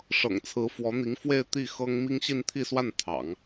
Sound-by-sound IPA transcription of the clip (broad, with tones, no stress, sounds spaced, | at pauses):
ʂ ɤ̰˨˩ ŋ t͡sʰ ɹ̩˧˥ f w ɔ˧˥ n̪ i˧˥ ŋ f w e˥˧ ɪ̯ t̪ i˥˩ x ɤ˥ ŋ m i˥ ŋ ɕ i˥˧ n t̪ʰ i˥˧ s w a˥˩ n t̪ʰ ɑ̰˨˩˦ ŋ